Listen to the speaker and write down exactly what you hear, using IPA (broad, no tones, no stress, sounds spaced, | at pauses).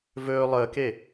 v ɵː lˠ əː k e